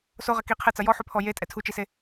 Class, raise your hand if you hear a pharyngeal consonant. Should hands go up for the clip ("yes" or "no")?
yes